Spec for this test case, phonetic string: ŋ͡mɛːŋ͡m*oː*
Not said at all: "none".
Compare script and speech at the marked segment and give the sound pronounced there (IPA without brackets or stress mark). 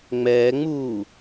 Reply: uː